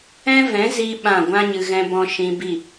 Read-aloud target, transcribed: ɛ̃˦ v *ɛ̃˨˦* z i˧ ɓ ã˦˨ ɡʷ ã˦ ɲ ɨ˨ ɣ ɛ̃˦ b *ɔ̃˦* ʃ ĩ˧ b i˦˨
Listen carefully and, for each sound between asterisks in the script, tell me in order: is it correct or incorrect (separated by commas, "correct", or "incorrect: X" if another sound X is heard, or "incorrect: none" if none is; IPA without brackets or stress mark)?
correct, correct